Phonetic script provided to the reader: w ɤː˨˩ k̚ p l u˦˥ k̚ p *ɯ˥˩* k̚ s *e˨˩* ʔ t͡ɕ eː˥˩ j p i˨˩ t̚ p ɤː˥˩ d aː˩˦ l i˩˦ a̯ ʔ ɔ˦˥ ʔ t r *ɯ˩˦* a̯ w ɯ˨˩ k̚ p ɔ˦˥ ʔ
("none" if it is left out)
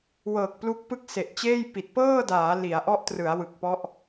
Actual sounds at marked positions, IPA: ɯ˥˩, e˨˩, ɯ˩˦

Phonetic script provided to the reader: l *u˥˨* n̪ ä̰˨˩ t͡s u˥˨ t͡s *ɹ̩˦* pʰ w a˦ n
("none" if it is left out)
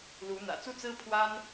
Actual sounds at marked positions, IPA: u˨˦, ɹ̩˦

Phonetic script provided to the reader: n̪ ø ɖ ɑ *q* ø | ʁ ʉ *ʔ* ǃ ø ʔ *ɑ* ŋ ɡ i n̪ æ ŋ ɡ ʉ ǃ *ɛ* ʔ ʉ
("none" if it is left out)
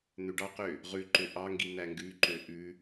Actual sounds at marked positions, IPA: q, none, ɑ, ø

